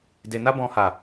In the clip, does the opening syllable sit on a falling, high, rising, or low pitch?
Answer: low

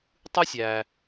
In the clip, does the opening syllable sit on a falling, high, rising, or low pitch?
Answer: high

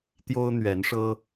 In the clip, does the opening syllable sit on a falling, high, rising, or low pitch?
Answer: high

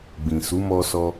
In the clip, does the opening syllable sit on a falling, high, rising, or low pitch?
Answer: low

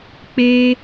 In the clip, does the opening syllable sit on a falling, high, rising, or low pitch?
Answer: high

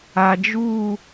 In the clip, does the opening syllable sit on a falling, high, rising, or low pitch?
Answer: low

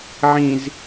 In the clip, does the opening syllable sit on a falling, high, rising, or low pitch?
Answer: low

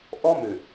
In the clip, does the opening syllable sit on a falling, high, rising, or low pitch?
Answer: high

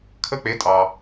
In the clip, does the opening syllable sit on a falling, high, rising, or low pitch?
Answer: falling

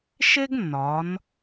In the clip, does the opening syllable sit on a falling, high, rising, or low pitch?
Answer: high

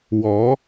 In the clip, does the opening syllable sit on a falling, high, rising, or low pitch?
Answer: rising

